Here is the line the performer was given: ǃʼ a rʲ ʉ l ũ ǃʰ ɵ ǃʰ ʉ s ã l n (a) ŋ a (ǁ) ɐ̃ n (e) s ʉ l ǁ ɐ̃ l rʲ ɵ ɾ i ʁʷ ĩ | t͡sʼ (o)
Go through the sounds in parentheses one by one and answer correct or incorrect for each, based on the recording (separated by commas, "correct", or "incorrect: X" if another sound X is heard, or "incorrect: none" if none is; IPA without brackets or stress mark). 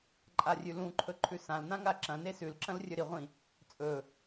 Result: incorrect: ã, correct, correct, incorrect: ɵ